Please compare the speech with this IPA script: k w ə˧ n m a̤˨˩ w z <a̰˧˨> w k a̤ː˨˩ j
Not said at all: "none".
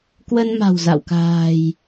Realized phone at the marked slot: a̰˧˨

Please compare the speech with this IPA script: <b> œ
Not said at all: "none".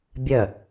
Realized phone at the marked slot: bʲ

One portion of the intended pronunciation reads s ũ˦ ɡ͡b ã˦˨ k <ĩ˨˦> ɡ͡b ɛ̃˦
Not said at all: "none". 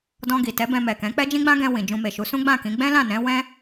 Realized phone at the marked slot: ĩ˨˦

